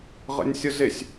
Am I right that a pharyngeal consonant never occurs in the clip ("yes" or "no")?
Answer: yes